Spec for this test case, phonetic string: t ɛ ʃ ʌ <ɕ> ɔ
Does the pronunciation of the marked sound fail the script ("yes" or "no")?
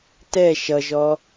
yes